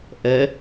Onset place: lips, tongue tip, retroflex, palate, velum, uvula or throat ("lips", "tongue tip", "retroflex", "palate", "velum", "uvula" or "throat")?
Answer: throat